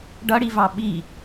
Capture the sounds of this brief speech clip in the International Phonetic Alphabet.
ɖ ʌ ɽ i v ɑ ɓ i

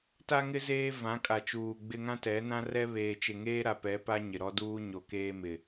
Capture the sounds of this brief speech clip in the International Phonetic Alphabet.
t a˦ ŋ ɪ˦ z eː˦ v ã˨˦ kʼ a˨ t͡ʃ uː˨ ɡ͡b ɪ˦ ŋ ã˦ t ɛ˨˦ n ã˦ r ɛ˦ β eː˨ t͡ʃ ɪ˨ ŋ eː˦ ɾ a˨ p ɛ˨˦ p a˦ ɲ ɪ˨ ɾ ɔ˦ d uː˦ ɲ o˨ k eː˦ m ɪ˨

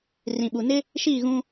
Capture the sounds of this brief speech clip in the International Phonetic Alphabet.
r ĩ˨ ɓ u˨ n ɪ˦ | ʃ iː˦˨ ɣ ũ˦

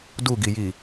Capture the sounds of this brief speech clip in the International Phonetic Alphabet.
d u ɡ i j i

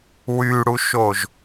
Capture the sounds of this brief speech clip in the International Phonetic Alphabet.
w y ɽ u ʃ o ʒ

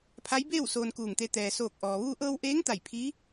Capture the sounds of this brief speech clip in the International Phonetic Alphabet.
pʰ a˧˥ j b eː˥˨ w s oː˧ n k uː˧˩ ŋ t̪ e˧ t̪ ɛː˩ s oː˧˩ k̚ ʔ ɔː˩ ʋ uː˧ ʔ ɤː˧ w ʔ eː˧˥ ŋ t̪ a˧˩ j pʰ iː˧˥

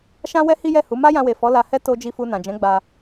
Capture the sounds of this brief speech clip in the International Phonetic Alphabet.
ʃ ã˦ w ɛ˦ h i˦ j ɛ˦˨ h u˨˦ m a˦ j ã˧ w e˨ f ɔ˨˦ l a˧ h ɛ˦ t o˦ d͡ʒ i˦˨ f u˧ n ã˨ d͡ʒ ɛ̃˨˦ ɡ͡b a˧

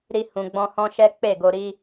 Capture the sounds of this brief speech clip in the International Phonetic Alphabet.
ɾ i˧ h ũ˨ ɡ͡b ɔ̃˧ h ɔ̃˦ ʃ ɛ˦ k͡p e˦˨ ɡ o˧ ɾ i˦

